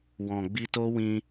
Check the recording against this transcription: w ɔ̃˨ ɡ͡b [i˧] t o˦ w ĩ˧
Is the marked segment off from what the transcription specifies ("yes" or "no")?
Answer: no